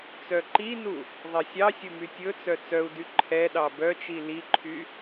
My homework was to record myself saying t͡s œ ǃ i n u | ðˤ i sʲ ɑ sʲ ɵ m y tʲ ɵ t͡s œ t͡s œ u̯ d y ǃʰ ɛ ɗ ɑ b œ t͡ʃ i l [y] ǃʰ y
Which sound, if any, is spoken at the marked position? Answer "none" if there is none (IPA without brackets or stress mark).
i